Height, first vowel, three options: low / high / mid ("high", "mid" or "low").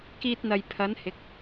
high